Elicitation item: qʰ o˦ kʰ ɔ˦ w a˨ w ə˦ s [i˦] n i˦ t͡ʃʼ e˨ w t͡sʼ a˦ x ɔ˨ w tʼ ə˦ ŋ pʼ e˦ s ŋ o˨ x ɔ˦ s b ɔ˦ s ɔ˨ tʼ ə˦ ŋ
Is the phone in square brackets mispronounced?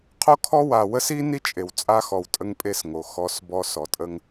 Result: no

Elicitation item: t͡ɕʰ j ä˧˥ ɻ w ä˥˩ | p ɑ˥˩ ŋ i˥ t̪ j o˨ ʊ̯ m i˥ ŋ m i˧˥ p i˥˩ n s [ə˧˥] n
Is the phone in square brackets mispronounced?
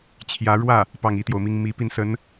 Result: no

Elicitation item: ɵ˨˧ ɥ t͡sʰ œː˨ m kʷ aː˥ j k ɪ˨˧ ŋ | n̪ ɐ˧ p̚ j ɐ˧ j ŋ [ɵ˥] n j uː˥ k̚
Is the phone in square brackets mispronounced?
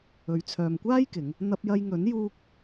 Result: yes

